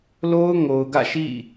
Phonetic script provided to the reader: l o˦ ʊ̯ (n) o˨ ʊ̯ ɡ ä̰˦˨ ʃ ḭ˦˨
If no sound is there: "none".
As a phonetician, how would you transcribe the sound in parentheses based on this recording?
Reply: ŋ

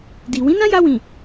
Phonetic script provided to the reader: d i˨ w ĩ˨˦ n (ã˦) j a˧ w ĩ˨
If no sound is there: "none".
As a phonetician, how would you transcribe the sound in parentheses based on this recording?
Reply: ã˦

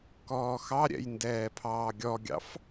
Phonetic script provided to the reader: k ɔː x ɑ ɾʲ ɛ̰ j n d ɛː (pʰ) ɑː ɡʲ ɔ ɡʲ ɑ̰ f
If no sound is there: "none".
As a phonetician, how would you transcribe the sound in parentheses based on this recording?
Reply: pʰ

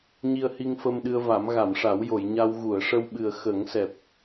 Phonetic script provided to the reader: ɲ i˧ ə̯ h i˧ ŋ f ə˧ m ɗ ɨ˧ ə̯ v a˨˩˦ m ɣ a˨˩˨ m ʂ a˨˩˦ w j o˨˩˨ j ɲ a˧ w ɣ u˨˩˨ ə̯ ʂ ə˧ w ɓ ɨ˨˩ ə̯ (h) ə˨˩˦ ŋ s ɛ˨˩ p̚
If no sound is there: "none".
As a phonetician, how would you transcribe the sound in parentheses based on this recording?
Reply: x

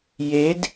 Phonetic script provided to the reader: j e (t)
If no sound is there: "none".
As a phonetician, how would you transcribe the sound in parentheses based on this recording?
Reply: d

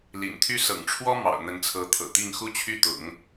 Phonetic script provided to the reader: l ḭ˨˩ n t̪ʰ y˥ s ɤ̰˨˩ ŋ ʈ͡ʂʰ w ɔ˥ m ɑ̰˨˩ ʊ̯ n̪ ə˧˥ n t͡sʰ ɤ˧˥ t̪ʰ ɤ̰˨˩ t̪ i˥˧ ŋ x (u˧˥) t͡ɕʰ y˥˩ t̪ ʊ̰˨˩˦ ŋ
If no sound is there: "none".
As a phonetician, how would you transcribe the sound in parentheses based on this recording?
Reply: u˥˧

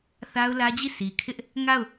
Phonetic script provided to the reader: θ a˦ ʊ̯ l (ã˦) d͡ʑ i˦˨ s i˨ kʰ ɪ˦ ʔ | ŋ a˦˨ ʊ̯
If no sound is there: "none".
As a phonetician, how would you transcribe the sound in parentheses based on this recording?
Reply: ä˦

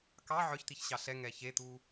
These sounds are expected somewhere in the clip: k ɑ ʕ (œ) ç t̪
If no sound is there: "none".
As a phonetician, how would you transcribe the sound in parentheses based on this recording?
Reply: œ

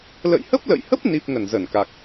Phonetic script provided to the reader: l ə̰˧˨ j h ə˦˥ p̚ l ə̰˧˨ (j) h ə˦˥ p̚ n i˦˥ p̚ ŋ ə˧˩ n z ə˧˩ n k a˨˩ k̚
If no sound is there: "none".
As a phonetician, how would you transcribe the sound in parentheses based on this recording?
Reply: j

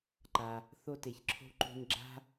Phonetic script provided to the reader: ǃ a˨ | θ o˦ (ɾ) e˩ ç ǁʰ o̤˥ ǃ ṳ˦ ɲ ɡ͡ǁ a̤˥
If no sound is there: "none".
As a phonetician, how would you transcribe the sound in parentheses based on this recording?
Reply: t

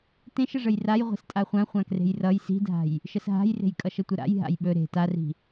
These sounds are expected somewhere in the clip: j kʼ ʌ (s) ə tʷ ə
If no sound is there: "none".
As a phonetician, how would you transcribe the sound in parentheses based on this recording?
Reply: ʃ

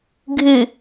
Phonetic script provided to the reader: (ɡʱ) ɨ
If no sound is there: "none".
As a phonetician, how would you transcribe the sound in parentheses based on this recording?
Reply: ɡʱ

